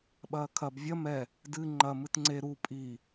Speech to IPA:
ɓ ɐː kʰ ɐ b vʲ ɐ m ɛ | d ɨ ŋ͡ǃ ɐ m ɨ t ŋ͡ǀ e ɾ u pʼ i

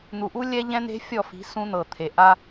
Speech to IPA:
n̪ u˨ ʔ u˦ lʲ ɛ˦ ʎ ɛ̃˦ n̪ e̤˦ fʲ ɔ˦˨ f i̤˨˦ s ũ˦ n̪ ɤ˨ t̪ʰ e˨ ʔ a˦

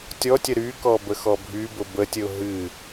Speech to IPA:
tʲ ɔ tʲ ə ɾ y k ɔ b ə x ɔ bʱ y b ʊ b ə tʲ ə ʊ̯ ɦ ɨ

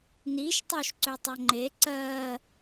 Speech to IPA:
n i ʃ tˤ o ʃ ǀ ø tˤ o ŋ͡ǃ e ǀ ɜ

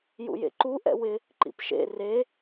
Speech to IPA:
j ṵ j ḛ ǃ u ʔ ɛ̰ w ɪ | ǃ ḭ p ʃ ḛ r e

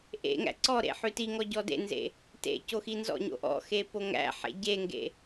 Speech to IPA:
ʔ ḛ ŋ æ̰ ǀ ɔ ɾ ḛ ħ ʉ t i ŋ ɔ ɟ ɔ d ḛ n z ḛ | t ḛ c o x i n z ɔ̰ ɲ o̰ ʔ ɔ̰ x e p o ŋ æ̰ ħ ḛ ɟ e ŋ ɡ ḛ

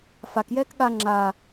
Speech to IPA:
f a k j ɛː k ɠ a ŋ͡ǁ a

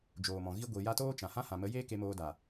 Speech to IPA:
d͡ʒ oː˨ m ɔ̃˨ ɣ i˧ ɡʷ i˨ j a˧ t oː˦ t͡ʃ ã˨ h ã˦ h ã˨ m ə˨˦ j eː˦ k e˧ m oː˧ d a˨

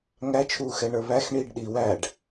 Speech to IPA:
ŋ æ t͡ʃʰ uː x ɛ ɳ ə˞ β æ x ɳ iː ɖ ɗ i w æ ɖ

